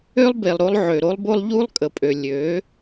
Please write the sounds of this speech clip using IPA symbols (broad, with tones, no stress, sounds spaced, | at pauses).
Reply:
ø˦ lˠ b e˨ lˠ ɾ o˧ lˠ ʕ ø˨ ɾ o˦ lˠ b o˦ lˠ ʎ u˦ lˠ kʼ ə˨ pʼ ø˨ lʲ ø˨˦